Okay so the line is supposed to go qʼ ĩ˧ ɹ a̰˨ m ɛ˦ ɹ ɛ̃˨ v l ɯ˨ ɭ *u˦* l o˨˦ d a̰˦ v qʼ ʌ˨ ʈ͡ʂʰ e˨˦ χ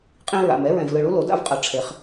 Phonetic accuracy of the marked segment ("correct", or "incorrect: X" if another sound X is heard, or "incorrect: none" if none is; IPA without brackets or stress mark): correct